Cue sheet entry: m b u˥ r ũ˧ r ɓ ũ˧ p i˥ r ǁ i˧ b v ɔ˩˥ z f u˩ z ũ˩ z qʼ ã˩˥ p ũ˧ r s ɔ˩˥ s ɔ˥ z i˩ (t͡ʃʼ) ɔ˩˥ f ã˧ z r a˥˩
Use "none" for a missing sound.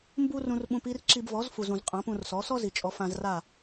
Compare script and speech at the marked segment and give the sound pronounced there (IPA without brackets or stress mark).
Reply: t͡ʃʼ